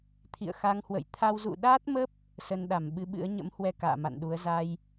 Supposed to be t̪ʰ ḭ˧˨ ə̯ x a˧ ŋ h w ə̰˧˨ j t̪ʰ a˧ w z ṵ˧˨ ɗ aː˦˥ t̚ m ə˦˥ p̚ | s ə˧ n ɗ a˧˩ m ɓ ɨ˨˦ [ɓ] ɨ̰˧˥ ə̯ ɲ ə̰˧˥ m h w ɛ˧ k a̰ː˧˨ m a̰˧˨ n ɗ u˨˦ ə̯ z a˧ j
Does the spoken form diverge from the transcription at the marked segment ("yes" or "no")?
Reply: no